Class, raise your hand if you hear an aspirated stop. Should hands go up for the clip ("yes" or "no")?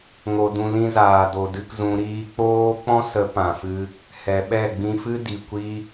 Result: no